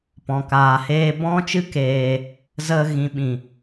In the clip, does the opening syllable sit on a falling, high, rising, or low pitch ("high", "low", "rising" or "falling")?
low